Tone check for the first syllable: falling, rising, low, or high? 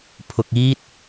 low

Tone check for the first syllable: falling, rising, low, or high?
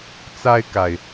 high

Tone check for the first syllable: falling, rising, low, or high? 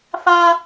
high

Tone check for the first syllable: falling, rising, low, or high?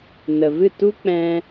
low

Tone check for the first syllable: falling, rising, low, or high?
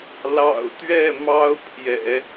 low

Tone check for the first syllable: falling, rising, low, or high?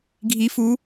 rising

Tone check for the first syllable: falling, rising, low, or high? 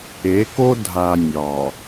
rising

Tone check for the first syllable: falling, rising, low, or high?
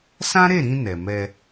high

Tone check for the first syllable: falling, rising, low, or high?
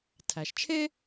low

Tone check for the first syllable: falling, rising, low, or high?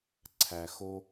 low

